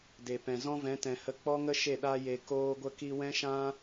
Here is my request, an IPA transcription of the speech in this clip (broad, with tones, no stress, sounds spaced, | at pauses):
d e˨ p ɛ̃˨ z ɔ̃˦ v ɛ̃˨˦ t ɛ̃˨ h ə˧ k͡p ɔ˦ ŋ ə˦ ʃ e˦˨ ɗ a˧ j e˨ k oː˧ ɡʷ ə˧ k i˧ w ɛ̃˦ ʃ ã˦